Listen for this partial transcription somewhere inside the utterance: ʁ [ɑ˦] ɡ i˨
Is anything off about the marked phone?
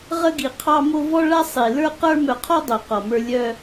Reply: yes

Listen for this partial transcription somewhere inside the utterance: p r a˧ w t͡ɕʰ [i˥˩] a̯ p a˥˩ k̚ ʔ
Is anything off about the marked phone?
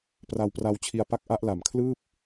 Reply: yes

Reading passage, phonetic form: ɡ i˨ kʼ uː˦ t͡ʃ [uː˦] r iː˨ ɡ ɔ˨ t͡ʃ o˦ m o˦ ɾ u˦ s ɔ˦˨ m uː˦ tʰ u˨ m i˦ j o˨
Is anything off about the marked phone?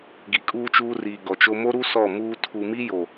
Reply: no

